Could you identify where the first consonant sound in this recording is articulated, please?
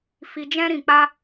labial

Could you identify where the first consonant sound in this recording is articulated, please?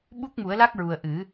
labial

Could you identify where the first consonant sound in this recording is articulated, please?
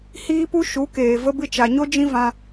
glottal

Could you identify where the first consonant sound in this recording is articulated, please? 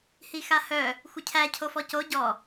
glottal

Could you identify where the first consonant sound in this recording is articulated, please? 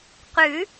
uvular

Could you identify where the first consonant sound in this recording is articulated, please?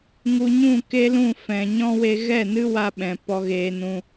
velar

